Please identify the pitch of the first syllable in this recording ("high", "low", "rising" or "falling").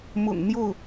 low